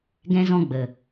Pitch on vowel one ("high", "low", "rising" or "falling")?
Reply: high